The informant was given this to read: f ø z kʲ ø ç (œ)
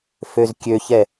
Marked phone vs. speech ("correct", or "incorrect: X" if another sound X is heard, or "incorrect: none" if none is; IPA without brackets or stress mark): incorrect: ɛ